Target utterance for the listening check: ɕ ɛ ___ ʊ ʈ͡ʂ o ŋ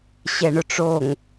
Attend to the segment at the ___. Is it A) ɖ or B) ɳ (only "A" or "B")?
B